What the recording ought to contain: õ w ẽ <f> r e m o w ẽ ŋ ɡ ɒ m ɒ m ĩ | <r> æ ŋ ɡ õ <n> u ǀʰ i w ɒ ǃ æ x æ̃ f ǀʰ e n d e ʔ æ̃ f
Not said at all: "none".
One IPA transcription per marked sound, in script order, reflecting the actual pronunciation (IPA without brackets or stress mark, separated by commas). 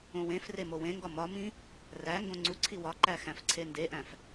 f, r, ŋ͡ǀ